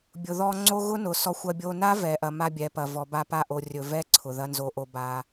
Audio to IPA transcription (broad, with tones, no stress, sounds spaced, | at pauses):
bʲ ʊ˨ ð ɔ˧ ŋ͡ǀ o˦ ɣ ʊ˦ n ʊ˨ s ɔ˧ xʷ ɐ˧ bʲ o˧ n a˦ v ɛ˨ ʔ ɐ˨ m a˦ bʲ ɛ˨˦ p ɐ˨ v ɔ˨ b a˧ p a˦˨ ʔ o˨ rʲ ɵ˨ v ɛ˦ ǀʰ ʊ˨ ð ɐ˦ n z o˨ ʔ o˨ b a˧